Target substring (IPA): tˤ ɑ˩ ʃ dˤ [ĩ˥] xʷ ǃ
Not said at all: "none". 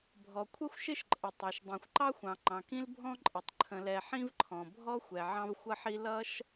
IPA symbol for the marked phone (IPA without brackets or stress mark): ĩ˩